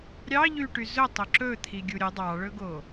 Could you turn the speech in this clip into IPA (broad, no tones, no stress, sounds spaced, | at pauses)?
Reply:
ɾʲ ɑ ʎ y ʈ y z ɵ tˤ ɵ ǁ ɵ t̪ʰ i ɡʲ u ɾʲ o dˤ ɑ ɭ ɵ ɡ o